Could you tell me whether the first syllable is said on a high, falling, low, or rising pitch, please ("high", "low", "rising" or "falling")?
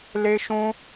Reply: high